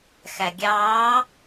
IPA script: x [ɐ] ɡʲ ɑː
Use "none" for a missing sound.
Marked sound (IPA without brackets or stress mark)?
æ